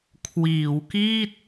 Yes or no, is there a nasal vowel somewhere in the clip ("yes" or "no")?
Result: no